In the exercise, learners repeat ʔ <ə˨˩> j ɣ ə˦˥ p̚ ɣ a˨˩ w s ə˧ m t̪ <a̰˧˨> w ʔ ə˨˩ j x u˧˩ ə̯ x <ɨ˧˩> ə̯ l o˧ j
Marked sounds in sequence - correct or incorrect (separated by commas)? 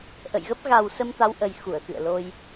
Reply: incorrect, incorrect, incorrect